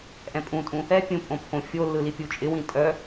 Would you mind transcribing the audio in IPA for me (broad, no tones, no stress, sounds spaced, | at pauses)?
ʔ ɛ̃ pʼ ũ tʼ ũ | ɛ pʲ ũ pʼ õ pʰ õ fʲ o lː ɯ l i pʲ u t͡ʃʼ ɪ w ĩ tʼ œ